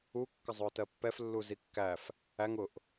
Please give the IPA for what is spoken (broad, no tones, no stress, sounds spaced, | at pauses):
u kː ə zˤ ʊː t ɜ pː ɛ f lː u z i kː æ f | æ ŋ ʊ ʔ